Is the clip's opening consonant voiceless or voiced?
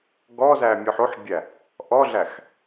voiced